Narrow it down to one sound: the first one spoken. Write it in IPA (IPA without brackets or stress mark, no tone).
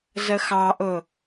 z